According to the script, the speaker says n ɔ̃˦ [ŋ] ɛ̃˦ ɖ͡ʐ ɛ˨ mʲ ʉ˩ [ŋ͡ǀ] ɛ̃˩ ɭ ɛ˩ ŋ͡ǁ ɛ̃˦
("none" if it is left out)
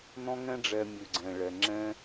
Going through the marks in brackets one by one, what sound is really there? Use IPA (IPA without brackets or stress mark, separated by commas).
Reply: ŋ, ɡ͡ǀ